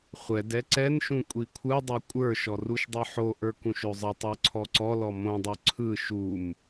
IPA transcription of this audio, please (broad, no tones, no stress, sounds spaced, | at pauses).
χʷ ɛ d ɛ ǀ ɛ n ʃ ũ kʷʼ i kʷʰ ɯ dˤ ø kʷʼ ə˞ ʃ ɔ r u ʃ dˤ ɯ ħ o ʔ ə˞ k ũ ʃ ø zˤ ə tˤ ə˞ ǀʰ ɔ ǀ ɔ l ɔ m õ dˤ ø ǀʰ ɯ ʃ u m